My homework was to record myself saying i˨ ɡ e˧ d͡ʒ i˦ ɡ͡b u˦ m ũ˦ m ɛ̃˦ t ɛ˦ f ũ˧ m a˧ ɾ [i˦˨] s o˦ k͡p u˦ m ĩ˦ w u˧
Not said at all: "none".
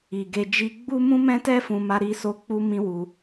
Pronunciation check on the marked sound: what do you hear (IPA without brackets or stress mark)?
i˧